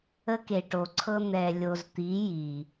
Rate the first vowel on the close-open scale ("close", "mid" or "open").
mid